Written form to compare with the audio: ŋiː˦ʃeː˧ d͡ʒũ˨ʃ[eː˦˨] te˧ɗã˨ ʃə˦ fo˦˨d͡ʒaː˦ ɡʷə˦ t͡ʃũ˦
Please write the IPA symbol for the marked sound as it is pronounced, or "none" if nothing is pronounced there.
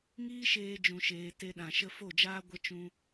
eː˨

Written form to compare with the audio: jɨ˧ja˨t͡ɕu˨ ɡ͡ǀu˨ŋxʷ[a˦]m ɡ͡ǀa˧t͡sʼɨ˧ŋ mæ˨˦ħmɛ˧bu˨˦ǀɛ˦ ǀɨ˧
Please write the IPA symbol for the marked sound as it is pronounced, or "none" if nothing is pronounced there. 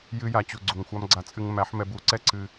a˦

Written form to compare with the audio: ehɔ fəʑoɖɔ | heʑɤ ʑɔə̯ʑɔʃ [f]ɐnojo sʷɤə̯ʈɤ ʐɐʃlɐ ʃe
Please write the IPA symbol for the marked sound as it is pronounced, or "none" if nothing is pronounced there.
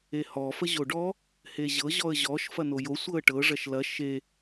f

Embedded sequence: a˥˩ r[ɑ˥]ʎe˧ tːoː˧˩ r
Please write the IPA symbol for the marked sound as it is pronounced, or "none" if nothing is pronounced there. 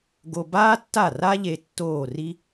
a˥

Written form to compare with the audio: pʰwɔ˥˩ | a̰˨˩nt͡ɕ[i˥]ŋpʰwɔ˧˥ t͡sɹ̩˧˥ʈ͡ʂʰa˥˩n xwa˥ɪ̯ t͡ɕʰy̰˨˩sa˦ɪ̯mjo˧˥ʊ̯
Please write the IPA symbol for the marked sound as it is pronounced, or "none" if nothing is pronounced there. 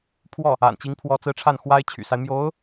i˧˥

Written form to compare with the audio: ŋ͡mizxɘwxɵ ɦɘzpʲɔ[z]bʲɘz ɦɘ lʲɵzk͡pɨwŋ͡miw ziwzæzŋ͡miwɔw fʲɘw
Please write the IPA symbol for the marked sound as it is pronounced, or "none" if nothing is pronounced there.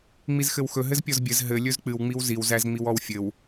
z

